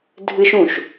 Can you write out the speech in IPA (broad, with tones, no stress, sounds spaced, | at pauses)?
dʱ ɨ˦ ʃ ũ˨ ʃ